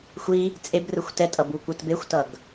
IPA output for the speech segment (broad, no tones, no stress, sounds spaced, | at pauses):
xʷ i | t͡sʼ e b r ɯ xʷ t ɛ tʼ ʌ b u kʷ ɯ t b e xʷ t ʌ ɡ